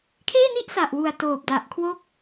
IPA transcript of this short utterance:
kʰeː˥˩ni˥˩ʔsa˨˩ʔwu˨˩a̯ toː˨˩p̚da˨˩ʔkʰwo˦˥k̚

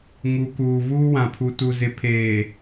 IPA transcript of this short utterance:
ŋu˨kuː˨ vuː˦wã˨pʰu˨ tu˨zɪ˨ pʰeː˨

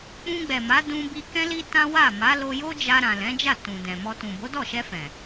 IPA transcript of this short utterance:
k͡pũ˧ɡ͡bɛ˨ma˨˦ dũ˧bi˧ kɛ̃˦li˦tã˦ wa˦˨ ma˨˦lo˧jo˦ d͡ʒa˧ɾã˨ lɛ̃˨˦d͡ʒa˦˨ tũ˨dɛ̃˨mɔ˧ tũ˨bo˨˦dɔ˦˨ʃɛ˧ fɛ̃˨

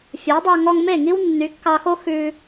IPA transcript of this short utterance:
fʲɵ˩˥wdˤɑ˧ ŋɔ˧ŋme˥˩ ŋi˥wnːy˩˥kːɑ˧xo˥ xʉ˧

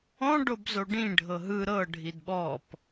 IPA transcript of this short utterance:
ɔ̃ ɖobzoɖĩ ɖʱɤɦɯ ɾɤ ɖʱidɓɔp

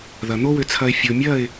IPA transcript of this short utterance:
ðɐ˨n̪o˦wʏ˧t͡sʰɐ˧ɪ̯ fʲo˨mʲɐ˦˨ɪ̯

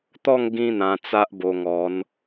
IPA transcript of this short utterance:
t̪ɔ˥˧ŋ ɡĩ˦n̪ã˧ t͡sa˦ʔbo˧ŋɔ˨˦n

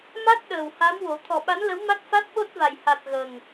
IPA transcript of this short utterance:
ma˦˥t̚ ɗəː˨˩wha˧˥mwo˨˩˦ t̪ʰɔ˨˩ɓa˧˥nlə˧˥w ma˦˥t̚fa˦˥t̚ɓo˦˥t̚va˨˩j ha˨˩t̚ ɣə˨˩ŋ

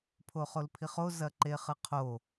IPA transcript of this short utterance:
pʰoχolpʰiχo zɐǃeχɨqʰo

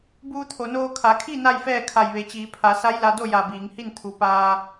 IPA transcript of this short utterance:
buː˧t̪ʰo˩noː˧ kʰa˩˧kʰi˥˨ na˥˨jfɛː˥˨kʰa˧˩j ʋe˩˧t͡ɕiː˩˧ pʰa˩˧sa˧˥jla˧do˥˨ ja˧˩biː˩˧ŋhi˥˨n t̪ʰu˩˧ paː˧

